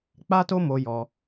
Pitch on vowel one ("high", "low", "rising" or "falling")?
high